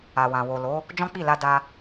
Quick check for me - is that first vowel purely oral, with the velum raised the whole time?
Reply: yes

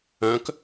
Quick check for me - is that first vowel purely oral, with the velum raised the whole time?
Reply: no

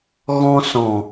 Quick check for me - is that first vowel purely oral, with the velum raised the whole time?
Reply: no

